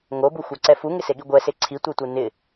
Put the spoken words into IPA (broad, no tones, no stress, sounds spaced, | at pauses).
ŋ o b u xʷ a ǀ ɛ f u ŋ ɪ s e ɠ i ɡʷ ɛ s e ǀʰ i tʷ e tʷ ɪ n ɪ